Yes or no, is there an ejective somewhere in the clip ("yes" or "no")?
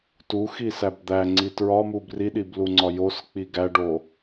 no